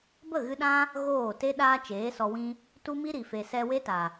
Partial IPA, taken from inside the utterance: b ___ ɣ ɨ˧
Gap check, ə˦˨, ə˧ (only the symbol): ə˦˨